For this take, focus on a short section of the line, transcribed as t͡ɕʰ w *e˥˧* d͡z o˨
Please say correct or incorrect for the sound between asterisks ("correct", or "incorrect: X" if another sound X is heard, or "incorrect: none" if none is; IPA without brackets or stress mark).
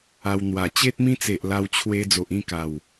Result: incorrect: e˧